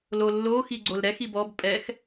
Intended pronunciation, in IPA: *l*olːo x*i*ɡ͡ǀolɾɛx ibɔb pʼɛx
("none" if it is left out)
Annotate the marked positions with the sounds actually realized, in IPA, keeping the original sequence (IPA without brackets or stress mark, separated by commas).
l, i